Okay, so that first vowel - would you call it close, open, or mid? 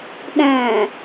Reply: open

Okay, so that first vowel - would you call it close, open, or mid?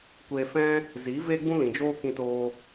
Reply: mid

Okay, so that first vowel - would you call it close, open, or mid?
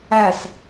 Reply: open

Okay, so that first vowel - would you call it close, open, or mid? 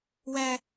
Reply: open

